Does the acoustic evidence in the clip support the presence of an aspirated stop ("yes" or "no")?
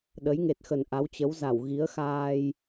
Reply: no